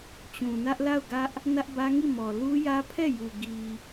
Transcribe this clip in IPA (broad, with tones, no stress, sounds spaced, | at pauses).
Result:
t͡ɕ ũ˨ n ä˦ ʔ l a˦˨ ʊ̯ ɡ ä˦ ʔ | n ä˦ ʔ b ä˦ ŋ i˦˨ m ɔ˨ l u˦ j ä˦ pʰ ɛ˦˨ j u˨ ɡ i˨